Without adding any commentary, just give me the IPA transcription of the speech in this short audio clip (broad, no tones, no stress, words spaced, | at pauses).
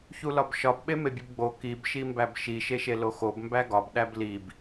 çulɒbʃɒb ɓemebʲubɡ͡bo kib ʃimbæbʃi ʃeʃeloxob mbæɡɒb ɗæblib